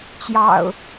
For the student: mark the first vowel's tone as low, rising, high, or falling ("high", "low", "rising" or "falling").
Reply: low